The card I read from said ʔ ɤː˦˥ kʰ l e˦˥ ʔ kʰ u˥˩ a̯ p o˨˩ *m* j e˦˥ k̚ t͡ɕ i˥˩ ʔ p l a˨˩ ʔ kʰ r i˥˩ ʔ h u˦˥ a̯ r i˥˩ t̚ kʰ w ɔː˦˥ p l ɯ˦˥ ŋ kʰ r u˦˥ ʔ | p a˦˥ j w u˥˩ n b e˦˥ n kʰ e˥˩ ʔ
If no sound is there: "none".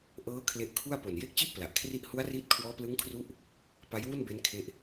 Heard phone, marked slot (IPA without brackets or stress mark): n